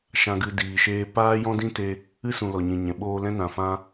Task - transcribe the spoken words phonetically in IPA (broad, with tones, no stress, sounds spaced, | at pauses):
ʃ ã˧ ɡ ɨ˧ d iː˨ ʃ eː˧ p aː˦ j ɔ̃˦ d ĩ˦ t e˧ | ɨ˦ s ũ˨ l ɔ˨ ɲ ĩ˨ ɲ ɛ̃˨ ɓ oː˧ l ɛ̃˦ n ã˨ f ã˦